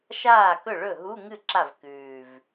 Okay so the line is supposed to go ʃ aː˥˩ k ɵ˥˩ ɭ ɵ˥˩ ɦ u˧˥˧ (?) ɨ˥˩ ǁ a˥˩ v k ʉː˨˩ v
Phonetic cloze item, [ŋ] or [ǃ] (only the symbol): ŋ